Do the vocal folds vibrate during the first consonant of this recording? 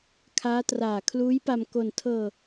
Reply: no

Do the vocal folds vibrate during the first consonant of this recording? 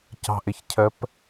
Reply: no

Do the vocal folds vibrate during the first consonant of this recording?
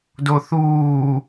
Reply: yes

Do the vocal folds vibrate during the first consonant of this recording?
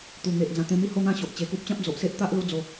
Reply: no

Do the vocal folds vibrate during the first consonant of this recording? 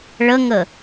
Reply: yes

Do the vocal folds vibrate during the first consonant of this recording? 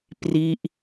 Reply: no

